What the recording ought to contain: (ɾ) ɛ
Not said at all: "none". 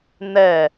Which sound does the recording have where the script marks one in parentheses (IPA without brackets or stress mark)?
n̪